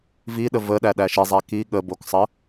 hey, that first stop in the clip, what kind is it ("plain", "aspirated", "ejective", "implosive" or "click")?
implosive